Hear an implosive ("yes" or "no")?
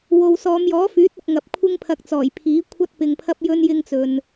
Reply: no